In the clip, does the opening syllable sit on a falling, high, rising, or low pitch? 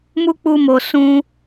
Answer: high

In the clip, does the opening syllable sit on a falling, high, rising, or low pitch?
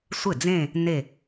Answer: falling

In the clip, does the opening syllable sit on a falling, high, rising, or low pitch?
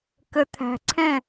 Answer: low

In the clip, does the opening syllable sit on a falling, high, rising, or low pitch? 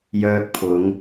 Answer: high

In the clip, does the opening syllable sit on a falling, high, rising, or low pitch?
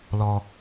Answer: low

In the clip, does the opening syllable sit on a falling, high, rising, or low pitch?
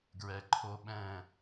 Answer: low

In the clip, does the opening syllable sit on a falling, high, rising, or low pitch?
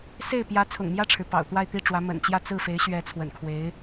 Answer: falling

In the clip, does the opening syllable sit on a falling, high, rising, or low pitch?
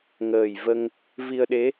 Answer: low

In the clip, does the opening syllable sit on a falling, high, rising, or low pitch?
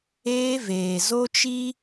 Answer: high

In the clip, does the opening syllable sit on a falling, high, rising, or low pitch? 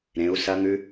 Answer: rising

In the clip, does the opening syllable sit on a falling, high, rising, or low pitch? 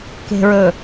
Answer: low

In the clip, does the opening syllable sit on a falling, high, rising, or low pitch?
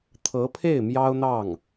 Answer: rising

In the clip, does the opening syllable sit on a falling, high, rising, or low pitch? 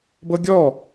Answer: high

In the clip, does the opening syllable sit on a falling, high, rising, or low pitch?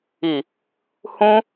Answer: low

